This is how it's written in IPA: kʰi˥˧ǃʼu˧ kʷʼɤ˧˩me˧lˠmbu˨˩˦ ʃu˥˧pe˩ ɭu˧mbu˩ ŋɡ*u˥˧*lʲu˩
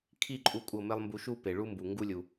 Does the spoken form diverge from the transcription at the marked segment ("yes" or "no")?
yes